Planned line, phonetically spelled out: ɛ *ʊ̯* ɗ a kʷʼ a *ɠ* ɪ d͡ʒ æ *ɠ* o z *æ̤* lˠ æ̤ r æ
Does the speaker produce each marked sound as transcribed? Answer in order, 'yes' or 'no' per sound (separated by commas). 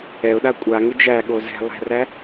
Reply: yes, no, yes, no